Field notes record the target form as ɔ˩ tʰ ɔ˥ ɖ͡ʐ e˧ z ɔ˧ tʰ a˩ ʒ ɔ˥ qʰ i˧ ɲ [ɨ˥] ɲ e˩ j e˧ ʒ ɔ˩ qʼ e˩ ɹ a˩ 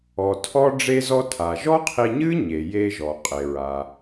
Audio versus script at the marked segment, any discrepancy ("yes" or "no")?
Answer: no